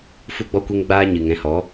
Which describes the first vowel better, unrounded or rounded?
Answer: rounded